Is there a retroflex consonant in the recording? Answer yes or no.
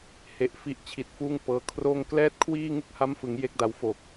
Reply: no